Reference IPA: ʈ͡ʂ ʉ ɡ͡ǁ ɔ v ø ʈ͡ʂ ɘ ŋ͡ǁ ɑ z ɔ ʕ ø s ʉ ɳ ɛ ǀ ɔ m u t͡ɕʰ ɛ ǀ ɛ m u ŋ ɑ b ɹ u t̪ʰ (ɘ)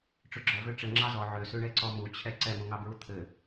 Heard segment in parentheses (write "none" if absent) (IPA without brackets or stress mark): ɘ